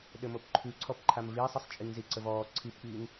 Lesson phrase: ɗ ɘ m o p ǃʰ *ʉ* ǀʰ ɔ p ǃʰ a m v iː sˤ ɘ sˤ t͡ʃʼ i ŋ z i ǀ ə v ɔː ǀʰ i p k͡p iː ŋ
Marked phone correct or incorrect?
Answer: correct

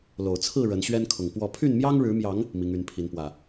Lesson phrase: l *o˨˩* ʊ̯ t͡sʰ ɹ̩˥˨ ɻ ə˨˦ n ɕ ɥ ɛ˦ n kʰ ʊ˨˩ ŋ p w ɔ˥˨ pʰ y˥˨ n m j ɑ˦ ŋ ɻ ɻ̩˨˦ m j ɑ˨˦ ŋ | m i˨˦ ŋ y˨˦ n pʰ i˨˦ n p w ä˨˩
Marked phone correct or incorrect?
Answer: correct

